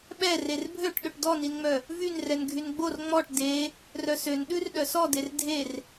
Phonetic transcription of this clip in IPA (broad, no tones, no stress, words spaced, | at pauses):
ɓɛ rerbʱøʈ ɗɵʈdɔninŋ͡mœ | vynrɛn ɡʱynɡ͡bor ŋ͡mɔʈ de | rœsøn ɗʉrɗœsɔder dʱer